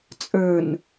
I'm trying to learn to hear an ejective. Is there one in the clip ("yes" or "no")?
yes